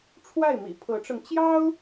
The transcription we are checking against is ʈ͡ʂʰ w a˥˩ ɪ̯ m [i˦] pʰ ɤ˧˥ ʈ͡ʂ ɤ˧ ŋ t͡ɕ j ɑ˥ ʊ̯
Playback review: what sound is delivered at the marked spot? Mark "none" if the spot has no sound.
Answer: ḭ˨˩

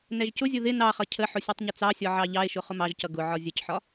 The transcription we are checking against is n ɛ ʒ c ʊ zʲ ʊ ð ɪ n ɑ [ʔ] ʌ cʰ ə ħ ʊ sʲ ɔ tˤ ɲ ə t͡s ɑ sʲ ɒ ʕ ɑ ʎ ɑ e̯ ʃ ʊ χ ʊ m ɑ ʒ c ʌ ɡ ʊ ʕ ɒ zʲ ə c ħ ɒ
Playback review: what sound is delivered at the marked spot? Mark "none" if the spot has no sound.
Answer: χ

